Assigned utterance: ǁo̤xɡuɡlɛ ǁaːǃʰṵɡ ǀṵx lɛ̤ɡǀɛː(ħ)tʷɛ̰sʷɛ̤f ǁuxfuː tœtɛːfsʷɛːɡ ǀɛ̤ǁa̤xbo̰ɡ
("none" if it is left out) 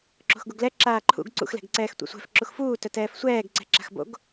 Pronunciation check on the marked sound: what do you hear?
x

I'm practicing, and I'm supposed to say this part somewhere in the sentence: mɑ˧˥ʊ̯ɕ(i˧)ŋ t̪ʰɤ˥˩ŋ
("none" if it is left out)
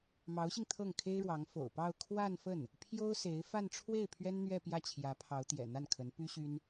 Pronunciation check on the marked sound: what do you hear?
i˧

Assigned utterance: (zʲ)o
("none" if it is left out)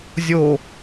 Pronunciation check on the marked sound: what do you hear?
zʲ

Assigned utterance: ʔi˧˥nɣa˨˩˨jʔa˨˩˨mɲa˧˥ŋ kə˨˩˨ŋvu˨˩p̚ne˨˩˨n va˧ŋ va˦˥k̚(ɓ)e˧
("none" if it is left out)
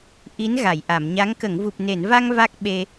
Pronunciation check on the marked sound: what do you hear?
ɓ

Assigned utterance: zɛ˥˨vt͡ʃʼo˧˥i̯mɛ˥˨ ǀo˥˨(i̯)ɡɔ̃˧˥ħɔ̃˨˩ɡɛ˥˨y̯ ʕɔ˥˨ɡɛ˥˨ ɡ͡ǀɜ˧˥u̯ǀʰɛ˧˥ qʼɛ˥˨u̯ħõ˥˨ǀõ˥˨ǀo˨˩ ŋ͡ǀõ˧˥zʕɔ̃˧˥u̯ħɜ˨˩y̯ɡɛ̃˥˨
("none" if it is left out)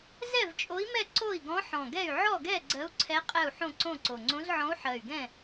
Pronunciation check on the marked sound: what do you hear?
i̯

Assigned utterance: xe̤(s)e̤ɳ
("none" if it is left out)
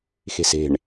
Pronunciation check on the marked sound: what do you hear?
s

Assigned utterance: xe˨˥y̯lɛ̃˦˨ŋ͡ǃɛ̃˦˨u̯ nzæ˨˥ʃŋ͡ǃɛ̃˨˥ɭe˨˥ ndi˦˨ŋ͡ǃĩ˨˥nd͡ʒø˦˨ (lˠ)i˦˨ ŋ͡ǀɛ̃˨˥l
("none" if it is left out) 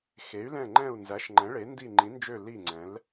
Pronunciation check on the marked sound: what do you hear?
l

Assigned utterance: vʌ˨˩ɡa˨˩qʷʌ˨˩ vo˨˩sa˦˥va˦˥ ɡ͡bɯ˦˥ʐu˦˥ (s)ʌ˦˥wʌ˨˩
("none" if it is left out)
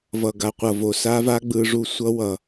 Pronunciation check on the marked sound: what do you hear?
sʷ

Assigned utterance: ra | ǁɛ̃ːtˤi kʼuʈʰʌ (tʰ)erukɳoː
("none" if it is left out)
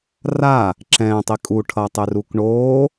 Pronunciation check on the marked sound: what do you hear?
tˤ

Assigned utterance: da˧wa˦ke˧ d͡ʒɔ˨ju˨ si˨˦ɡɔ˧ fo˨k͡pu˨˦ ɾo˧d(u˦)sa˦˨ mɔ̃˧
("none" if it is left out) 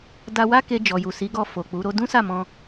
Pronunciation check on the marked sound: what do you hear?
ũ˦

